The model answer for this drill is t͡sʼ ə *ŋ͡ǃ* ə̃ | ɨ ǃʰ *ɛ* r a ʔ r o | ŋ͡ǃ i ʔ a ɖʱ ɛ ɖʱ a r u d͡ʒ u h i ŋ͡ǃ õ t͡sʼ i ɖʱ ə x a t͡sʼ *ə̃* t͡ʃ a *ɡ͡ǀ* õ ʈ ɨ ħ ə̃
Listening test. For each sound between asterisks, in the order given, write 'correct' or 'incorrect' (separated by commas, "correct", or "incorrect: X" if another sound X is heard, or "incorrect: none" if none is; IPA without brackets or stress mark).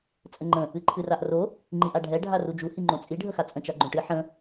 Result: correct, incorrect: ɨ, correct, incorrect: ɡ͡ǃ